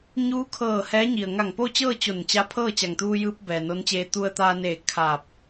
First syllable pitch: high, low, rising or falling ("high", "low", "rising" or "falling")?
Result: rising